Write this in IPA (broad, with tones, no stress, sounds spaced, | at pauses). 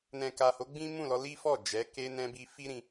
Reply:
n ɛ̃˨ k a˨ h o˨˦ ɡ͡b ĩ˦ m ũ˦˨ l ɔ˧ l i˦ f ɔ˦˨ d͡ʒ ɛ˨˦ k e˧ n ɛ̃˧ b i˧ f i˦ ɾ ĩ˧